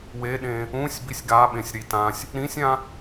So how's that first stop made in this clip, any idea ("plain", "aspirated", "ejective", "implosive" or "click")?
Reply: implosive